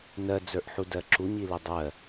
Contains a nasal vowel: no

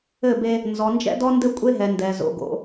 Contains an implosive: no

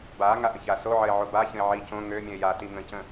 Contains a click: no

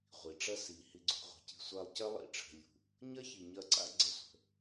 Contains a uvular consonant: yes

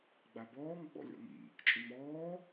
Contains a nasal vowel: no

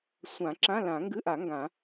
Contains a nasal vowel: yes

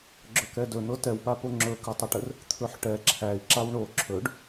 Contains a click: yes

